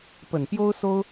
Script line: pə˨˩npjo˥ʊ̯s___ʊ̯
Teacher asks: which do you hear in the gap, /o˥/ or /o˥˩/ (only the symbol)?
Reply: o˥